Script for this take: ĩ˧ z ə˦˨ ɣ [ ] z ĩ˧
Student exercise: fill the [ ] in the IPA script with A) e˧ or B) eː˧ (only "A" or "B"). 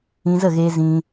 B